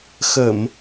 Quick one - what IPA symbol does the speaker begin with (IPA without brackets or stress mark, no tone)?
x